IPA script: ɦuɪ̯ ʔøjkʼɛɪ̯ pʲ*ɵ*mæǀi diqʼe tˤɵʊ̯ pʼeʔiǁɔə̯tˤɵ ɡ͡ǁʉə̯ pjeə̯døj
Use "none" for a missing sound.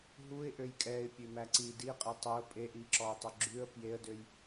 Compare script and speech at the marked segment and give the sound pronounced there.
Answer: ø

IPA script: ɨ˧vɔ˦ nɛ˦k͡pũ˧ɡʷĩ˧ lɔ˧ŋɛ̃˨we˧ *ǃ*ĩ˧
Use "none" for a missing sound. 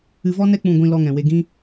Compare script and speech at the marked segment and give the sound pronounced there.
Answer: ɡ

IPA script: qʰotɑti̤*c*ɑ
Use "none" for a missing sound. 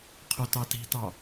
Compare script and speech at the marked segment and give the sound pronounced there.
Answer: t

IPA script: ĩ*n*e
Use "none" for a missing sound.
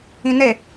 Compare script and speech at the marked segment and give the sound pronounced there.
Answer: n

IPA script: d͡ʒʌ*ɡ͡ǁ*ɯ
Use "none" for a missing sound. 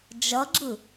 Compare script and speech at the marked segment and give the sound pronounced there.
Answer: ɡ͡ǁ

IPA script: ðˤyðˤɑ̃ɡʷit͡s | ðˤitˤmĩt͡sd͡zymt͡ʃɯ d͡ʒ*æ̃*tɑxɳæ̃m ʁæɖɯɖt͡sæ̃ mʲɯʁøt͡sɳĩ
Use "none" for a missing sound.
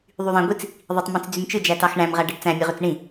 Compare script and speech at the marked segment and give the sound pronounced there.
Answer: æ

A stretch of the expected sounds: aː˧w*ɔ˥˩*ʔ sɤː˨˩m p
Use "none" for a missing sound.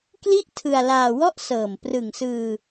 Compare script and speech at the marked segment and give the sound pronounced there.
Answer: ɔ˥˩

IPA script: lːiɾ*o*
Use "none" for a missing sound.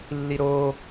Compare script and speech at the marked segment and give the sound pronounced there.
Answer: o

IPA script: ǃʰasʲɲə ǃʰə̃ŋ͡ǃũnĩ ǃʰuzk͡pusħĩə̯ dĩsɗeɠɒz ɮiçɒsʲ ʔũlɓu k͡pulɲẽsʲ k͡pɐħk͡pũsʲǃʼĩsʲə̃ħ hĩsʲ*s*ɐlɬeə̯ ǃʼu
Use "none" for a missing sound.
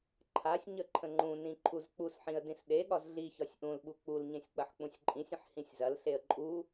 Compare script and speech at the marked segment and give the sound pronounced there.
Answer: z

